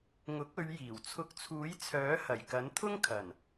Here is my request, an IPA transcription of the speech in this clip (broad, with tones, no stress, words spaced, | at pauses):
ŋʊ˨˥k̚ɵ˨˧ɥjiː˨˩w t͡sʰʊ˧k̚t͡sʰuː˨˥jt͡sʰœː˨˥ hɐ˨˩jkɐ˨˥nt̪ʰʊ˥ŋkʰɐ˨˩n